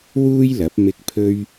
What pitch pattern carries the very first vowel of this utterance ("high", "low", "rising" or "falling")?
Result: high